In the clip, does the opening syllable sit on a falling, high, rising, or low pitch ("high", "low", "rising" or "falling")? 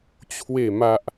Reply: falling